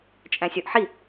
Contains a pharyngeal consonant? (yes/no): yes